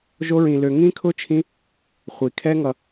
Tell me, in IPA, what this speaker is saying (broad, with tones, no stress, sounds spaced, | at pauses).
ʒ o˦ ɹ ĩ˧ l ø˧ ŋ ĩ˦ kʰ ʊ˦ t͡ʃʰ ĩ˦ | χʷ i˨ kʰ ɛ˦ ŋ ʌ˧